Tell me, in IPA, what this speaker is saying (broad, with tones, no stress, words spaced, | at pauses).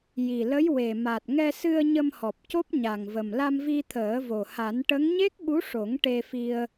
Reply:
ji˨˩lə˧˥j we˨˩ ma˨˩t̚ŋɛ˧sɨ˧ə̯ ɲə˧mhɔ˨˩p̚co˦˥p̚ ɲa˨˩ŋvə˨˩m la˧mvi˧t̪ʰəː˨˩˦vo˨˩ ha˨˩˦nʈə˧˥ŋ ɲe˦˥k̚ɓu˧˥ʂo˨˩˦ŋ ʈe˧fi˧ə̯